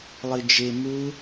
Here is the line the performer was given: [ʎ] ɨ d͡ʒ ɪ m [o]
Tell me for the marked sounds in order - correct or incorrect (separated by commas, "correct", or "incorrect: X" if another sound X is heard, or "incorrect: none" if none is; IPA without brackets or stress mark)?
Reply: incorrect: lˠ, incorrect: u